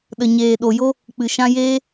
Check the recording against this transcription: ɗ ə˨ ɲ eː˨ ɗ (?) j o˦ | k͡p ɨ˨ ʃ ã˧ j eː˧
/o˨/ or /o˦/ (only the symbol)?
o˨